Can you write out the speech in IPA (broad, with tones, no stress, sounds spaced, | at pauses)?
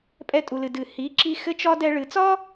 pʼ ɛ˧ tʼ u˩ l ɨ˩ d ɨ˩ h i˩˧ ǁ i˧ x ɘ˥ t͡ʃ ɒ˥ d ɛ˧ ɭ ɨ˩˧ t͡s ɒ˥